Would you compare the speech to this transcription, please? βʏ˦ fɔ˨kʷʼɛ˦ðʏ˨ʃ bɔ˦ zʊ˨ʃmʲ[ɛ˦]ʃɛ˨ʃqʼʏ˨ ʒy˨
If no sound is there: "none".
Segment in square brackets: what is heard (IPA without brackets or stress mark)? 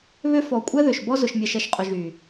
ɛ˨